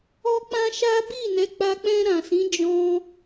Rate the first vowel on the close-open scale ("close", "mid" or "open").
mid